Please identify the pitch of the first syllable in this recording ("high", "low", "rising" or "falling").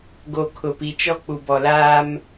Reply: low